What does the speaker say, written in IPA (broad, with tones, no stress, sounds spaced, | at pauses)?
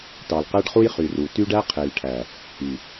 t ɑ˨ l q æ˦ ɖ χ u˦ j χ y˨ r u˨ t y˦ ɖ æ˦ qʰ e˨ l ʈʰ æ˨ | i˨